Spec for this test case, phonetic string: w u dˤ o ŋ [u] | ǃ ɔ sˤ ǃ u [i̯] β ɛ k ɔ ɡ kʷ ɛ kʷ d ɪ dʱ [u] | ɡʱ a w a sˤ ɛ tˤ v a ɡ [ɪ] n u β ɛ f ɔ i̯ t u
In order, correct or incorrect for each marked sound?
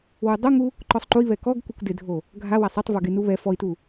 correct, correct, incorrect, correct

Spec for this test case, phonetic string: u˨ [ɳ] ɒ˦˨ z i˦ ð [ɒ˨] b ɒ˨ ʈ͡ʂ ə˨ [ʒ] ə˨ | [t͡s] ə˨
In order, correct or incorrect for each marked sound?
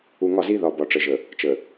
incorrect, correct, correct, incorrect

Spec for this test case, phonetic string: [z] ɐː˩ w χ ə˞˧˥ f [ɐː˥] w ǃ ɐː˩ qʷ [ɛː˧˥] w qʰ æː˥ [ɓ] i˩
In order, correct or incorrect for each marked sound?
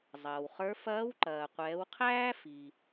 incorrect, incorrect, incorrect, incorrect

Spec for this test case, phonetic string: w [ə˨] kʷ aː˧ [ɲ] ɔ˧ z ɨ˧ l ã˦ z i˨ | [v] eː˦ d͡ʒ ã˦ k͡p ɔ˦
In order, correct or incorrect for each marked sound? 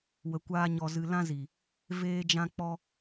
correct, correct, correct

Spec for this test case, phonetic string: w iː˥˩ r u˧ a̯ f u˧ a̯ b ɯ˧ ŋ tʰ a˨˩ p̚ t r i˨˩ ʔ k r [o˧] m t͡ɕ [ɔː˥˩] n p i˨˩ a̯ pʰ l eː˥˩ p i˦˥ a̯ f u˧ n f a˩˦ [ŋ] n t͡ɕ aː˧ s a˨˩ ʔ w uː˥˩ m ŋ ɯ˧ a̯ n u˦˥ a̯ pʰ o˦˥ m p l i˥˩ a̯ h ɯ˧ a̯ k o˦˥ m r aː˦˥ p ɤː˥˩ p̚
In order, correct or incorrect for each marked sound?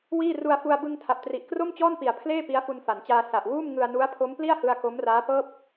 incorrect, correct, incorrect

